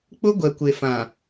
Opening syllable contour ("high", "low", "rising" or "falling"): high